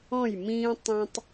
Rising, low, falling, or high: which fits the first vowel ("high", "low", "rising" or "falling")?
falling